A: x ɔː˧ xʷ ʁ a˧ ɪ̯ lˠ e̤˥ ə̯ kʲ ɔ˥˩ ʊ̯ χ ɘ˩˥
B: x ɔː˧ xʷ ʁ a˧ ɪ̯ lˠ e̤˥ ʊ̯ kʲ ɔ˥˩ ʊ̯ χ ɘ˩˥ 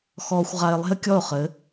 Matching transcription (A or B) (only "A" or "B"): A